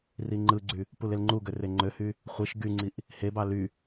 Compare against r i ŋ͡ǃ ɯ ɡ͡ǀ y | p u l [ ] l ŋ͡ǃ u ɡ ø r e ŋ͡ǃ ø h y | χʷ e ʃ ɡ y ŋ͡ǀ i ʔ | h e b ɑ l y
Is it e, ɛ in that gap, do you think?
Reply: e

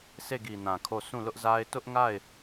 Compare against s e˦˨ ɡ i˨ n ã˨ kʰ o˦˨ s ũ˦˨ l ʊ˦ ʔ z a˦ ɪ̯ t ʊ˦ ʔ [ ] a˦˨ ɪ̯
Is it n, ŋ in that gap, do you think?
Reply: ŋ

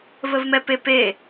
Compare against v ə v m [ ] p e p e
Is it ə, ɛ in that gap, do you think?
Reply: ɛ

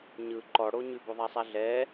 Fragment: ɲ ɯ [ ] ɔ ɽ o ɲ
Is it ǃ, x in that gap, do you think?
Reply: ǃ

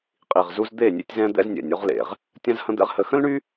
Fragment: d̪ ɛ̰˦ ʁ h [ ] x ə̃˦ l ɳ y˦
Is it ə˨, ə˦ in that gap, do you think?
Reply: ə˦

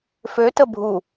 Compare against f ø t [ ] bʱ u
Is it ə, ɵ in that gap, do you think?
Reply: ə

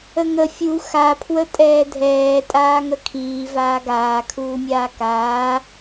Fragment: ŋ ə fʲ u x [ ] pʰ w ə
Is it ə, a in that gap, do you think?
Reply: a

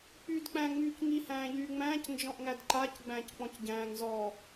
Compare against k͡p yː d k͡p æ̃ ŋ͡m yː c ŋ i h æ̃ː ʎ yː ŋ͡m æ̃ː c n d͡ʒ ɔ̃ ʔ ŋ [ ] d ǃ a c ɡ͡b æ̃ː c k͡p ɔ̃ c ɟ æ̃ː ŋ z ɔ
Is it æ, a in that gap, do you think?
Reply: æ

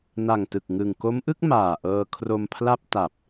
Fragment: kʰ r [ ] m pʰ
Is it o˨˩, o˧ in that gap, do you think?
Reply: o˧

